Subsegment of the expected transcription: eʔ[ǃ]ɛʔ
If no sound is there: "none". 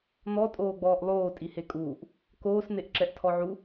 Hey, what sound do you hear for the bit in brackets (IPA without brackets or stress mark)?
ǁ